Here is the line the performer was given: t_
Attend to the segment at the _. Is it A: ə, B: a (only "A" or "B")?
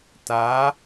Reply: B